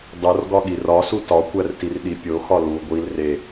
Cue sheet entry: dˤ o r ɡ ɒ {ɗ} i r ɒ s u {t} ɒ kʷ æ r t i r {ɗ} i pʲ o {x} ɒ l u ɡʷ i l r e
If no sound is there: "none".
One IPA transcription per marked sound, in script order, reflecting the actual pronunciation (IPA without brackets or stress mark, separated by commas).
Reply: ɠ, t, ɗ, x